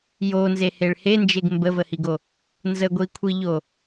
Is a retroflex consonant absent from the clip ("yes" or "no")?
no